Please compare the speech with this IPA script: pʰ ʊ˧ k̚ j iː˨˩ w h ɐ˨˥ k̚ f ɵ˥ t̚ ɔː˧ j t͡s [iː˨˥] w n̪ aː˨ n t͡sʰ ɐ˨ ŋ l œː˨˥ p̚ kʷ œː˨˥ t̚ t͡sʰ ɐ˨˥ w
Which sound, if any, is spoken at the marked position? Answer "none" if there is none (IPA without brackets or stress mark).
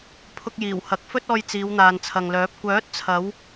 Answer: iː˨˧